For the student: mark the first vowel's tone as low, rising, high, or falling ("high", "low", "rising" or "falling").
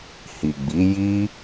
low